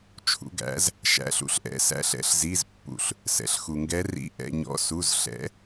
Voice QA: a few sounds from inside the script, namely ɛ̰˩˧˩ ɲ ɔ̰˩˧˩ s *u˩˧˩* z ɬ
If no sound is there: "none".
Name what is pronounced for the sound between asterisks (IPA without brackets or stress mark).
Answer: u˩˧˩